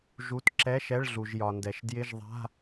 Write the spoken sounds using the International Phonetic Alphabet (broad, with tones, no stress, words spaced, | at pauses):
ʒu˧˥˧t ǁɛ˧˥˧ʃɛ˧˥˧ɭ ɮu˩ʒjɒ˩ndɛ˩ʃ djɪ˧˥˧ʒ ðˤa̤˧˥˧